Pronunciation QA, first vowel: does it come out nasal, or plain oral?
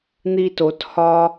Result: oral